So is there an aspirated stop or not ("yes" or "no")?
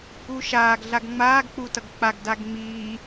no